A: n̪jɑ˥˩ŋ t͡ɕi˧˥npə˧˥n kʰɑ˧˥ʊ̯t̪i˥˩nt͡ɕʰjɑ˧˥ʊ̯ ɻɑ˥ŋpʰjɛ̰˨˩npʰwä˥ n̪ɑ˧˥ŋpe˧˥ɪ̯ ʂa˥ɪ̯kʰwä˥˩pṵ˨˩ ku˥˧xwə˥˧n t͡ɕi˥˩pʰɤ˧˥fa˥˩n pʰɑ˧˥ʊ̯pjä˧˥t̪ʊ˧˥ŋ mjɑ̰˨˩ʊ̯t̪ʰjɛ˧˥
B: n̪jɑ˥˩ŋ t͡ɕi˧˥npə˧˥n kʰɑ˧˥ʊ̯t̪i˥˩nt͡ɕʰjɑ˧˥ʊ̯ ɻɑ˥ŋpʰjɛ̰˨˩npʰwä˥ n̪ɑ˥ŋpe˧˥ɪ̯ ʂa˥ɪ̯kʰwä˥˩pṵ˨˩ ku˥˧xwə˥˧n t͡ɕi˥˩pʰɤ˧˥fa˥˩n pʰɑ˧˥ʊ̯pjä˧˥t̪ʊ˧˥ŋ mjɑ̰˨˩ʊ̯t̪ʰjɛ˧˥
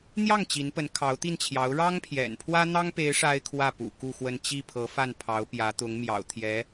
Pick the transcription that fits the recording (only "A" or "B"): B